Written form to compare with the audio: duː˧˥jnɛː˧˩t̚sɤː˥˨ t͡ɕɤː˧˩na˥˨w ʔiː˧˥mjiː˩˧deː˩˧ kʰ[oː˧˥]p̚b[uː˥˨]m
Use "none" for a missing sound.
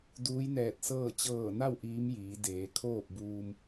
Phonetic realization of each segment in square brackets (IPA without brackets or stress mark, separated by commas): oː˥˨, uː˧